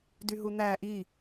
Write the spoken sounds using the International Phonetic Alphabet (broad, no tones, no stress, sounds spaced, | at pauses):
d y ɦ u n̪ æ ʔ i